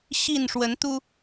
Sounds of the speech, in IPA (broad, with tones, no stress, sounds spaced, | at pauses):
ɕ i˥˨ n ʂ w ə˨˦ n t̪ u˦